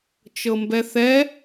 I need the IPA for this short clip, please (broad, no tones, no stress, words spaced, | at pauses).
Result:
t͡ʃɤmbɛθɛ